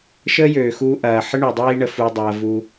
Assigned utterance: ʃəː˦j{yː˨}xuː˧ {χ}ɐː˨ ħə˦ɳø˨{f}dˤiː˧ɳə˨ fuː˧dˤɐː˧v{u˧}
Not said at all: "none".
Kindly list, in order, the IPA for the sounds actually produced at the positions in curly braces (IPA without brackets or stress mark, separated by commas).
øː˨, ʔ, none, u˧